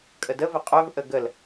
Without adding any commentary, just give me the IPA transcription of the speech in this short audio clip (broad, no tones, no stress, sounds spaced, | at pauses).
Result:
kʼ ə d ə v ə qʼ œ v ʔ ə ɡ ə l